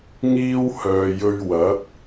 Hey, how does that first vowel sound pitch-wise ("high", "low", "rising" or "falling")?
high